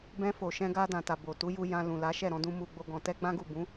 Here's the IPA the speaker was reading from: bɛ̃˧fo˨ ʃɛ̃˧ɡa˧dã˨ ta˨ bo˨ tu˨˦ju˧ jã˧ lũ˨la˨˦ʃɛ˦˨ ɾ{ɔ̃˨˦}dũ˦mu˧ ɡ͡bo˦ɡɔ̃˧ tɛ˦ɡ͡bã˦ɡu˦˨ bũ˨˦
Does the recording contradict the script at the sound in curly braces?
no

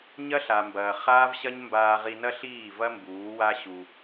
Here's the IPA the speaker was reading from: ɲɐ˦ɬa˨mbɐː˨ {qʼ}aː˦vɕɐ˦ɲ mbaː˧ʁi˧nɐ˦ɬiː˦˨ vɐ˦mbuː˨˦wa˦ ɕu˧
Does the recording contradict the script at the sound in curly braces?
yes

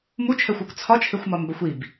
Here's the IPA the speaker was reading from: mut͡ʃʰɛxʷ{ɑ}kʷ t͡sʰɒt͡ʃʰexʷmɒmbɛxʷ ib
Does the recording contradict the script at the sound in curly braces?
no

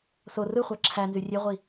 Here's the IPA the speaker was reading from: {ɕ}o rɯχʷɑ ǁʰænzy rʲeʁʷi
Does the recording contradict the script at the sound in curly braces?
yes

